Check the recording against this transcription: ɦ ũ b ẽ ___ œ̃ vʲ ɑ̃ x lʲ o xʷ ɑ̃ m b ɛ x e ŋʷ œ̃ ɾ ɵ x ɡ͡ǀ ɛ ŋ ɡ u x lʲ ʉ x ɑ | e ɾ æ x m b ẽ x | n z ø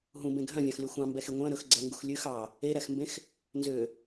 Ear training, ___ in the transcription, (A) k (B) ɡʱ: B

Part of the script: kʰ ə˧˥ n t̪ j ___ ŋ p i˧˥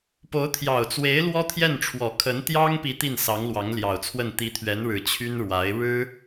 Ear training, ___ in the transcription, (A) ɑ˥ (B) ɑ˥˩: A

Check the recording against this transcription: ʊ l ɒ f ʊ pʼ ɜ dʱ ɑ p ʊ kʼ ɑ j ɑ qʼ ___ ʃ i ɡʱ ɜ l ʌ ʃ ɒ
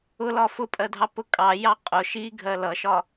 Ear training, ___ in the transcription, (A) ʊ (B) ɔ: A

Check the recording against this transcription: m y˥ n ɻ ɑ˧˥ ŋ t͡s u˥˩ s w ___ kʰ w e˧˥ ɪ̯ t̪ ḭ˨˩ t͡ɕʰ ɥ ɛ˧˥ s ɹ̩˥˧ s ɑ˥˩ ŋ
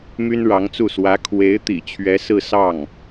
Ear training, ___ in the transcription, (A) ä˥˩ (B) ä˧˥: B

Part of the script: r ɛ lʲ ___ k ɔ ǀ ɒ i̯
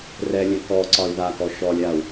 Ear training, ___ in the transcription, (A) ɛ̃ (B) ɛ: A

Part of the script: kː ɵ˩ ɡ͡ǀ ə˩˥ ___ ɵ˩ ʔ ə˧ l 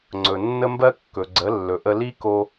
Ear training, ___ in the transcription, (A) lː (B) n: A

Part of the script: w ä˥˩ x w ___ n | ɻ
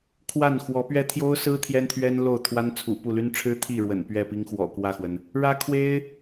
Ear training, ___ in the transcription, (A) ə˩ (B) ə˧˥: A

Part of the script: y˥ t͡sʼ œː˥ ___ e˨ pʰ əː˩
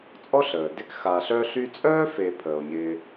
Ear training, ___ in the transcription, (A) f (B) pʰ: A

